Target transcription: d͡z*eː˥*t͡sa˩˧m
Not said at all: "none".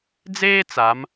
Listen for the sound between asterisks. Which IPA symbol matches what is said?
eː˥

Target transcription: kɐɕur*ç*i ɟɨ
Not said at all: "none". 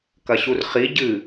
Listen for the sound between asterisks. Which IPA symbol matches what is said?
χ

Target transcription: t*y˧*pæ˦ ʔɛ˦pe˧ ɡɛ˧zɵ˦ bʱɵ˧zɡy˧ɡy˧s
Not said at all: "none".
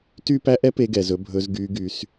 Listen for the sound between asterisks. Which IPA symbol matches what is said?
y˦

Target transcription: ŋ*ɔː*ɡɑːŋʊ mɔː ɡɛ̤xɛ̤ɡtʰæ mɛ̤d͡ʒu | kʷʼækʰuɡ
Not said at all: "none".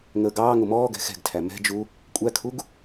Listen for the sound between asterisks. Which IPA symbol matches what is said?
əː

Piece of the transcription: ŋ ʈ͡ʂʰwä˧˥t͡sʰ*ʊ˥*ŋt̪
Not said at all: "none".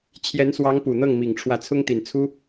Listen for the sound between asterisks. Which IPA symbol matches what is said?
ʊ˥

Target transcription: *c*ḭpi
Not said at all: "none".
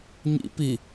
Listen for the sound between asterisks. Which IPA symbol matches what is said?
ɲ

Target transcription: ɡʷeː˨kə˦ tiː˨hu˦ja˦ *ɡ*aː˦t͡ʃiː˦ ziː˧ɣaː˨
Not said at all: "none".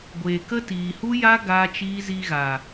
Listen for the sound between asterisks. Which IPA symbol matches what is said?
ɡ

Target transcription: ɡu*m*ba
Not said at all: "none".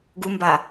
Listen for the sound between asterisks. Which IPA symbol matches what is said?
m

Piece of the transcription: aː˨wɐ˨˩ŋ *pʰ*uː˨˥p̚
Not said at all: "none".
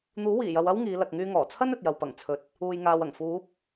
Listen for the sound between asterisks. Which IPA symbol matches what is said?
f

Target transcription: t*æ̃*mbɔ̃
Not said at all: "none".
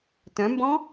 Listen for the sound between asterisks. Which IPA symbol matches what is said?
œ̃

